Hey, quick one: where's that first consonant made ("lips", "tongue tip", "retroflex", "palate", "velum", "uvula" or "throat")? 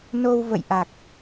tongue tip